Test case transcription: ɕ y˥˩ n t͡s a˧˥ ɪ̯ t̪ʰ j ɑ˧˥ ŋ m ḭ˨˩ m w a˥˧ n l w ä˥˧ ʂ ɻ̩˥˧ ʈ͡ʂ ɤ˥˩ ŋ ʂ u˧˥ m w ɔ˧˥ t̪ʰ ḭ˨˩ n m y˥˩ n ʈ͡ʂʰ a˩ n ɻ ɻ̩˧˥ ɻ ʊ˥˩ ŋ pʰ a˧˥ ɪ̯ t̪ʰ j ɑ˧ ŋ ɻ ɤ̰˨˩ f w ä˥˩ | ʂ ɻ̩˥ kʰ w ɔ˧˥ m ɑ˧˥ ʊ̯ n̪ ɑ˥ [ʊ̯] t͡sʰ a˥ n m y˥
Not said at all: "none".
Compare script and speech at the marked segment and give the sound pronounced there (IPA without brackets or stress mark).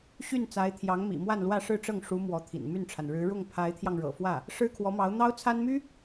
ʊ̯